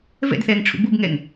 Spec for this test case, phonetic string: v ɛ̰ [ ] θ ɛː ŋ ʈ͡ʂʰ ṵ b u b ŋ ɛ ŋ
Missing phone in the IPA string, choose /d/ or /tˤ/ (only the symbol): d